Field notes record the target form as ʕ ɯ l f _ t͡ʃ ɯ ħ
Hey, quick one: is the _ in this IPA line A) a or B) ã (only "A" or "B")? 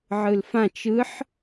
B